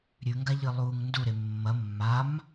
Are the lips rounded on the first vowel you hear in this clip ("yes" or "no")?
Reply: yes